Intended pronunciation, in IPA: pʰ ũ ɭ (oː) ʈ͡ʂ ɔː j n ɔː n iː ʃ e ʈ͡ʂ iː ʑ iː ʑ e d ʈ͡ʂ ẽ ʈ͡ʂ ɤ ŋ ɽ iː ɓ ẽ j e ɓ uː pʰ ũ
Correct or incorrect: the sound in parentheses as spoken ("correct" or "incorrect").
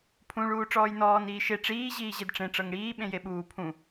incorrect